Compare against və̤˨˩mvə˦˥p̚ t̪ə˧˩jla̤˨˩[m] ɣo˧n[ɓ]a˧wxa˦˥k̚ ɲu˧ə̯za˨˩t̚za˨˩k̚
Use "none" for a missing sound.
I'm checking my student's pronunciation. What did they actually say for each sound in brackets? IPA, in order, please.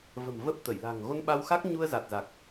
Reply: ŋ, ɓ

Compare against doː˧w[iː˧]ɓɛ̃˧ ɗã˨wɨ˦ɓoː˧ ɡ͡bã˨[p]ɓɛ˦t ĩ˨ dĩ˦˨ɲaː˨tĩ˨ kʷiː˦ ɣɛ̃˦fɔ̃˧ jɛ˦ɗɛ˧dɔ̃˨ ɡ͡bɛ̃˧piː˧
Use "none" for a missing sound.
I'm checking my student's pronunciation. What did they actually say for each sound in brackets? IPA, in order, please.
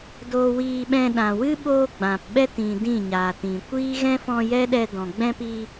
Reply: iː˧, p

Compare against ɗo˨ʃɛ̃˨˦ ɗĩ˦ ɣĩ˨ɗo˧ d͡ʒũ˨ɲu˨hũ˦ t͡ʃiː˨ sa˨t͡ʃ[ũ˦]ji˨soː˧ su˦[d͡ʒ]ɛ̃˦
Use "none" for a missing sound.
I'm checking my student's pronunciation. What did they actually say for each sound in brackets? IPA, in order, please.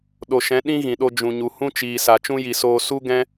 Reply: ũ˦, ɡ

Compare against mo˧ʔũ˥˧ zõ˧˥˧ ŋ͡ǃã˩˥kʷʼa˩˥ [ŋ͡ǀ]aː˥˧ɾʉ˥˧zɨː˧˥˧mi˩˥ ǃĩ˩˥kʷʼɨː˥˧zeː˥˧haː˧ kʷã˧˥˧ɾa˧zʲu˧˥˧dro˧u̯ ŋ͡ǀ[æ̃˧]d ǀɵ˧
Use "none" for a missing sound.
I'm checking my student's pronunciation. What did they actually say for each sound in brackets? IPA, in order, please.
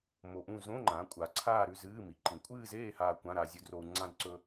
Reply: ǀʰ, ã˧

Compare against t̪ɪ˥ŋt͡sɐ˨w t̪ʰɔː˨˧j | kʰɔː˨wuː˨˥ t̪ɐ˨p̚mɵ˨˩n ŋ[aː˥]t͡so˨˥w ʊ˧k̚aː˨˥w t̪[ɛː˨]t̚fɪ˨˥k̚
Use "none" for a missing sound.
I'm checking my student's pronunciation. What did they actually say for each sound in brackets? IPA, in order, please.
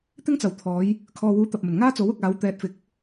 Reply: aː˥, ɛː˨

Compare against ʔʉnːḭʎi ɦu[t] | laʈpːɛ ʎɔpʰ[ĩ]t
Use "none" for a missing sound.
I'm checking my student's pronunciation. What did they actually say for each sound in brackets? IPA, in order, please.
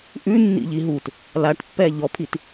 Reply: t, i

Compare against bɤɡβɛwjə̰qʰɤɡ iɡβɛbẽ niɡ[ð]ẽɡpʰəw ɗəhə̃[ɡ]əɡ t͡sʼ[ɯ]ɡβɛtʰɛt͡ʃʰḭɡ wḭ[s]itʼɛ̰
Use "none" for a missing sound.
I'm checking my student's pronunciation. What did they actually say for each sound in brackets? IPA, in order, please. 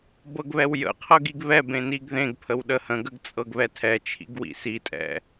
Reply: ð, ɡ, ɤ, s

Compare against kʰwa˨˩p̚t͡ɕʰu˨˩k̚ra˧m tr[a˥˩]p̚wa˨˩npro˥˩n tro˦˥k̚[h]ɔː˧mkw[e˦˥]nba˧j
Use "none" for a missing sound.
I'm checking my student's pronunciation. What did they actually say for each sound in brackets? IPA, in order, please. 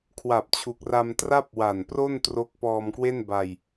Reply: a˥˩, p, e˥˩

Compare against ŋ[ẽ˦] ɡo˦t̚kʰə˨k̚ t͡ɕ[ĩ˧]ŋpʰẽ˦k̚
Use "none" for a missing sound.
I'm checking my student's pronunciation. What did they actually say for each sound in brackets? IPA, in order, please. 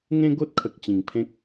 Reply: ẽ˦, ĩ˨˩

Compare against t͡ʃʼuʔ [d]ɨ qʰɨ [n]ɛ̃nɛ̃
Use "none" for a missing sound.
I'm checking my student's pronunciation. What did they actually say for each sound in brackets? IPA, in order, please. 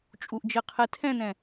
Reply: d͡ʒ, tʰ

